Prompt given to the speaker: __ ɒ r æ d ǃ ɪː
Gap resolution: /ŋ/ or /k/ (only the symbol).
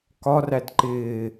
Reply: k